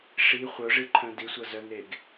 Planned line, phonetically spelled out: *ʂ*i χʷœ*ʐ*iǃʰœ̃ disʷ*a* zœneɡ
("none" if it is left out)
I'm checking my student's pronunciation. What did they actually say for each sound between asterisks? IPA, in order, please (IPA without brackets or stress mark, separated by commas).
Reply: ʂ, ʐ, ʌ